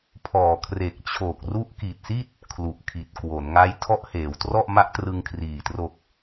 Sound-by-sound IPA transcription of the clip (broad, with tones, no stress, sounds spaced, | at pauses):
pʰ ɔː˨˩ kʰ r e˨˩ k̚ t͡ɕʰ o˨˩ k̚ r u˦˥ ʔ k i˨˩ t̚ s i˥˩ t̚ | kʰ l u˨˩ ʔ kʰ i˨˩ t̚ k w o˩˦ n ŋ a˦˥ j tʰ ɔ˦˥ ʔ h eː˩˦ w t r ɔ˥˩ ʔ m a˦˥ ʔ t r ɯ˧ ŋ kʰ r iː˨˩ t r o˨˩ k̚